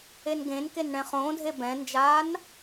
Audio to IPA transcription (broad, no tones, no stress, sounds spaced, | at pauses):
e n ɡ ẽ n k e n ɳ ɛ̃ χ õː dʱ e b ɛ̃ n d͡ʒ aː n